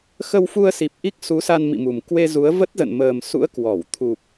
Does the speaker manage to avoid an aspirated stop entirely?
no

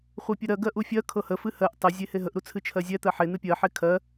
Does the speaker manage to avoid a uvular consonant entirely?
no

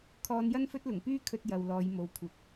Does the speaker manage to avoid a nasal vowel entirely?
yes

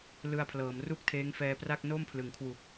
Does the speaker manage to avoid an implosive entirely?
yes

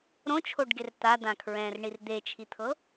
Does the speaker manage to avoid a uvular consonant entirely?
yes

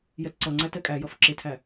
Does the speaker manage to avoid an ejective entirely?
no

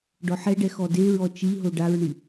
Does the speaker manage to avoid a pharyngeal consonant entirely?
no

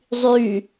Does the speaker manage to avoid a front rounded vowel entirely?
no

